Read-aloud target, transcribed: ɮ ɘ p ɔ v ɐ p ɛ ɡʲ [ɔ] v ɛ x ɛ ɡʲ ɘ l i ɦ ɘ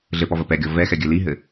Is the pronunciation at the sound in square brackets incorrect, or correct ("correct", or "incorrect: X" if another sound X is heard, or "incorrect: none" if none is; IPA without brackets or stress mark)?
correct